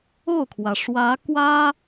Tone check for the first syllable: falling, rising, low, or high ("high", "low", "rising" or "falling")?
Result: falling